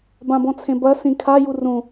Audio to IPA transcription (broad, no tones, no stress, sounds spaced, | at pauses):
b ã b ɔ̃ t͡sʰ ẽ b ɐ s ĩ kʰ a j u r ũ